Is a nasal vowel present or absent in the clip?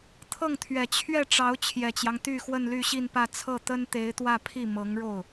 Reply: absent